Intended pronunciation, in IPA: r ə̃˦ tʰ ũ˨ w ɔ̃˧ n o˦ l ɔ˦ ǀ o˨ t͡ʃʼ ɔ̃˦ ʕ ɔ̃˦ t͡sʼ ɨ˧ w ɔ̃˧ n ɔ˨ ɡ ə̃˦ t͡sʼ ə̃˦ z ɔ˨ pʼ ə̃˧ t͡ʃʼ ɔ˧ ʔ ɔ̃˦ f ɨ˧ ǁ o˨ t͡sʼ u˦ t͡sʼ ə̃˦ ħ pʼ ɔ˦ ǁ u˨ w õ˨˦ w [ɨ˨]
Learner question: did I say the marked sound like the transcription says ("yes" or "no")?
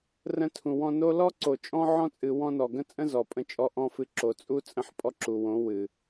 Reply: yes